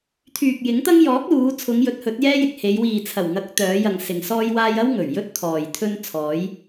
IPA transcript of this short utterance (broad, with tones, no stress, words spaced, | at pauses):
t̪ʰyː˨k̚jɪ˨˥ŋt̪ɐ˥ŋ jɔː˨˥k̚luː˨˧t͡sʰʊ˨˧ŋ jɵ˨˥t̚hɵ˨˥t̚jɛː˥jɪ˨k̚ he˨˧jwiː˨ t͡sʰɐ˨˩wŋɐ˨˥k̚ t̪œː˨˧jɐ˨ŋ sɪ˨ŋsɔː˥jwaː˥j ɐ˥w ŋɵ˨˩ɥjɵ˥t̚ t̪ʰɔː˨jt̪ʰɵ˥n t͡sʰɔː˨˧j